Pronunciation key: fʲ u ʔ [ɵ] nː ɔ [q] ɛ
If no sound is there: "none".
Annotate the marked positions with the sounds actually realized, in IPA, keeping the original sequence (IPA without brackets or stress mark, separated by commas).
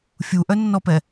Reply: œ, p